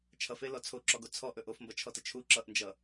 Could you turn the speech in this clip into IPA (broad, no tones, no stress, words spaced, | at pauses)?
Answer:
t͡ʃʰʌfelɔ t͡sʰoǁɔɡo t͡sʰɔʔɵ ʔofmbʌt͡ʃʰɔtə t͡ʃʰu ǁʌʔnd͡ʒʌ